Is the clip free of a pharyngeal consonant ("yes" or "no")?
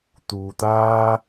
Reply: yes